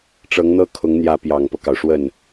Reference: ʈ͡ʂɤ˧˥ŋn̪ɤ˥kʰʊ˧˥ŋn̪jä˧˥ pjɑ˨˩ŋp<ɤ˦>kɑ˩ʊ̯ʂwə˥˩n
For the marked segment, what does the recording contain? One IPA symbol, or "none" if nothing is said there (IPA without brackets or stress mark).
ɤ˦